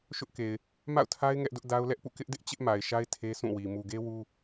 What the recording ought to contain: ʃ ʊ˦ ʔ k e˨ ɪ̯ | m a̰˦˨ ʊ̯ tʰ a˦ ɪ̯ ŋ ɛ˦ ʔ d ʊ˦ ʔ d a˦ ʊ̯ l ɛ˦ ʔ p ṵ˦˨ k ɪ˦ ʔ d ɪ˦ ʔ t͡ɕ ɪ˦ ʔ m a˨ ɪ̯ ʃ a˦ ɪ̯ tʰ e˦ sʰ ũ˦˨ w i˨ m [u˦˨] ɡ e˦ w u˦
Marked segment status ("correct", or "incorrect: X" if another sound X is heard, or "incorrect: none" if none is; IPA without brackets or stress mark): incorrect: u˨